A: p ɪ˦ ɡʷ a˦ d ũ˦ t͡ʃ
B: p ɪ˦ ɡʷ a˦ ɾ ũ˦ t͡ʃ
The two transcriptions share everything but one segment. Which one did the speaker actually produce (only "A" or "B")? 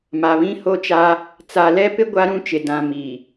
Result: B